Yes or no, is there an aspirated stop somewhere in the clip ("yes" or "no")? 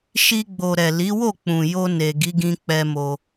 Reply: no